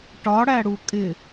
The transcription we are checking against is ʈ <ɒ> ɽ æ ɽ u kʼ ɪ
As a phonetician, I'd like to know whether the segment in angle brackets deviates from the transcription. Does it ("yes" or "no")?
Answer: no